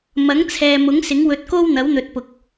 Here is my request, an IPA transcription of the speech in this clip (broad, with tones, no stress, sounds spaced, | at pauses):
m ɐ˨˥ ŋ t͡sʰ ɛː˨ m ʊ˨˥ ŋ s ɪ˨˥ ŋ w ɵ˧ t̚ k o˥ w n̪ ɐ˨˥ w n̪ ɵ˨ t̚ p ʊ˨ k̚